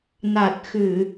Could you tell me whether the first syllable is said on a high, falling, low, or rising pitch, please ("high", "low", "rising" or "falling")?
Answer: low